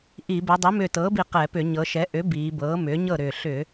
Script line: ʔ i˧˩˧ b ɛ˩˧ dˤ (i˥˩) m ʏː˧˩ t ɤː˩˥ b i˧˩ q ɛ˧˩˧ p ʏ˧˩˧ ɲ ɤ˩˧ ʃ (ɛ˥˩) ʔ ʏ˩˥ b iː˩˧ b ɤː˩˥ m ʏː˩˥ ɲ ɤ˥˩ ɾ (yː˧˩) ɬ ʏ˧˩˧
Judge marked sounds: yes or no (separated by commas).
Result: no, no, no